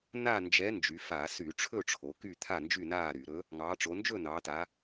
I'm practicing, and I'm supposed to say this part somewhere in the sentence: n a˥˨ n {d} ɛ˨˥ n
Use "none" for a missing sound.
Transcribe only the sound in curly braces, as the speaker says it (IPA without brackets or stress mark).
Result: d͡ʒ